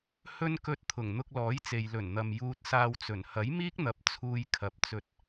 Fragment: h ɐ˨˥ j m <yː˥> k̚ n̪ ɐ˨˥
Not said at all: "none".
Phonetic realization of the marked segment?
iː˥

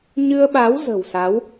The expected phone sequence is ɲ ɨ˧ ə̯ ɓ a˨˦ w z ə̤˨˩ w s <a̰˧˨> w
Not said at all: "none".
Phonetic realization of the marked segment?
a˨˦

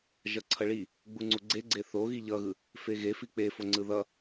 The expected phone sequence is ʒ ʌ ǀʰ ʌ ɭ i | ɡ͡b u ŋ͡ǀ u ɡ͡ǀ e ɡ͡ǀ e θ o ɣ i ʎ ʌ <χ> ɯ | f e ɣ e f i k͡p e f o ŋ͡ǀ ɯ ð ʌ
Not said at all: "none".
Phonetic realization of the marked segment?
ɣ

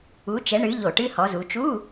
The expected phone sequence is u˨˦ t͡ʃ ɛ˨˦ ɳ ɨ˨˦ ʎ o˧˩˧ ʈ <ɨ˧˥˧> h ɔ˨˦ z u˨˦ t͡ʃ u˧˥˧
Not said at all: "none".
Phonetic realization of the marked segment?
ɨ˧˥˧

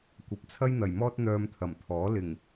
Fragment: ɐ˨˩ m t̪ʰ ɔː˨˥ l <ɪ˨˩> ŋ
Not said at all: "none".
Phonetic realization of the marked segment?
ɪ˨˩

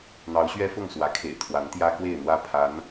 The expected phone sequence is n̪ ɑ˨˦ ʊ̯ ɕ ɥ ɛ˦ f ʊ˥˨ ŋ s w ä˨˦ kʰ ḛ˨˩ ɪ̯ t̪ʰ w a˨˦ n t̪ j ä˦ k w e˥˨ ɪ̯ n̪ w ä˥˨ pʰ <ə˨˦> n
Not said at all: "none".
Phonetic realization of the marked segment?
a˨˦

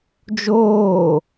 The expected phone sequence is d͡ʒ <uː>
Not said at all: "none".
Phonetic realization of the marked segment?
oː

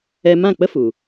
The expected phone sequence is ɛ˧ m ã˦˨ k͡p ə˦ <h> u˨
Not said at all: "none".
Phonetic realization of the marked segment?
f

